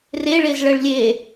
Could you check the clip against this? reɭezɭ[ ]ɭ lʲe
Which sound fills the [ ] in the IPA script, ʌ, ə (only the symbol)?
ə